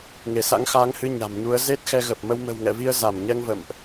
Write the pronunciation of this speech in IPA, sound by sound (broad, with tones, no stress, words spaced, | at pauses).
ŋe˧˩sa̰˧˥ŋxaː˨˦ŋhɨ˧ ɲa̤˨˩mɲu˨˦ə̯ ze˦˥t̚xɛ˧ ɣə˨˩p̚ mə˧w mə̤˨˩wŋɛ̰˧˨vi˧ə̯ za˧˩mɲɛ˧ŋvə̰˧˨mʔ